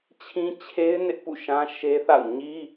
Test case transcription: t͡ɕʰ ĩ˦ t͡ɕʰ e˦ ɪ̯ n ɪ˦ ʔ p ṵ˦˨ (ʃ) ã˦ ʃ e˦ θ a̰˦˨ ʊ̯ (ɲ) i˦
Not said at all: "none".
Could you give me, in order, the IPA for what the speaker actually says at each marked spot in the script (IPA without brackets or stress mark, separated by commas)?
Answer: ʃ, ɲ